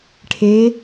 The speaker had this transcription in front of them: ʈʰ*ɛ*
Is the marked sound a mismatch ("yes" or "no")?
yes